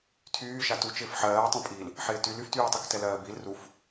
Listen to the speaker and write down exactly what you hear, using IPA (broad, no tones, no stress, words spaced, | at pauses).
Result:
tʰyː ʃatut͡ʃɪːf ħɜːtˤĩpʼiːl | ħɪːtyl yftyːtˤyk tɛlɜːbil ruf